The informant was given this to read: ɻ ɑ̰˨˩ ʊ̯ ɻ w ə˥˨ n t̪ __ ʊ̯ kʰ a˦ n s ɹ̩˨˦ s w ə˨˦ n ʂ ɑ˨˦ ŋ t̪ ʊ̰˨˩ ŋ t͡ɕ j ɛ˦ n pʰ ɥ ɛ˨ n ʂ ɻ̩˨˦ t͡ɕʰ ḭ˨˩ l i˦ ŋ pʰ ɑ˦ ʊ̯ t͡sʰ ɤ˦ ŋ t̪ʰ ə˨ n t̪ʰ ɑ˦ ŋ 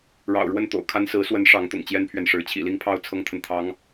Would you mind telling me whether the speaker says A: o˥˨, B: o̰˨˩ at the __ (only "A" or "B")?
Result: B